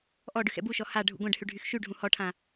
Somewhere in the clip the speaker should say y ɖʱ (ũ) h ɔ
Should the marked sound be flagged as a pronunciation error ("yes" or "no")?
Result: no